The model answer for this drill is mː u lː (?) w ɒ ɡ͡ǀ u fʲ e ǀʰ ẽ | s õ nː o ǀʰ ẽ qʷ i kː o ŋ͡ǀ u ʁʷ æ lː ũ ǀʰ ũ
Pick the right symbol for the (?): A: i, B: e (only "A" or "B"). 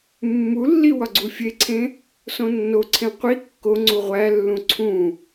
A